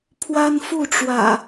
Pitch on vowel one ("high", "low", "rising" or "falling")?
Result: high